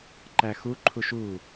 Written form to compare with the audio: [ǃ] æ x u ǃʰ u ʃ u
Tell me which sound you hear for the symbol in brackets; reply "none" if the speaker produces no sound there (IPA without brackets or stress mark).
ǃ